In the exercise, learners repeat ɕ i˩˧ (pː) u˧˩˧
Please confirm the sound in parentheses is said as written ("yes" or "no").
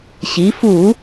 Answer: no